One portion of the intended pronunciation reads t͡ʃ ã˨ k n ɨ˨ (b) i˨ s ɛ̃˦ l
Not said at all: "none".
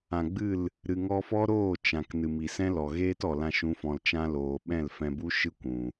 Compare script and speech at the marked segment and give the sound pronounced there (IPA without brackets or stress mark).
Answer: m